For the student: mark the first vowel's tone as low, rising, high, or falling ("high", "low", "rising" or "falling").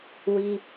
high